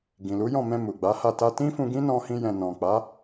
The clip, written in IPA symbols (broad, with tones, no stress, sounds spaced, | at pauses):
ɡ ĩ˨ l u˨˦ j ɔ̃˦˨ m ɛ̃˧ m u˨ ɡ͡b a˨˦ h a˦˨ t a˧ t ĩ˦ f ũ˧ ɡ ĩ˦ n ɔ̃˦ h ĩ˦ j ɛ̃˧ n ɔ̃˨ k͡p a˨˦